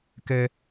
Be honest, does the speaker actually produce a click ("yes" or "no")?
no